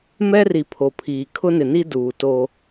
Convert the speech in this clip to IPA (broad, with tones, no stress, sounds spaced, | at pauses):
m ɛ˦ r i˨ pʰ o˨ pʰ iː˨ kʰ ʊ˦ n ɪ˨ n i˦ d uː˨ t o˦